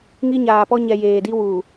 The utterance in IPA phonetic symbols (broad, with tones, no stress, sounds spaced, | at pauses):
ŋ i˦ ɲ aː˨ p ɔ˦ ɲ ɛ˨ j eː˨ d i˦ w uː˨